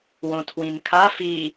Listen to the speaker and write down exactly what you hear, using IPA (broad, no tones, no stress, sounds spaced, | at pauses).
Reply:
w õ tʰ w ĩ n kʰ a f i